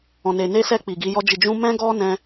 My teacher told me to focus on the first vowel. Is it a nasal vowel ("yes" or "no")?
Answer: yes